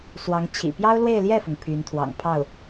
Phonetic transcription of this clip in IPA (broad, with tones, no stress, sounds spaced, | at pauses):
s w ɑ˧˥ ŋ t͡ɕʰ ḭ˨˩ p j ɑ˥ ʊ̯ l w e˥˧ ɪ̯ l j ɛ˥˩ f ʊ˩ ŋ pʰ y˧˥ n t̪ʰ w ɑ̰˨˩ ŋ pʰ ɑ˥˩ ʊ̯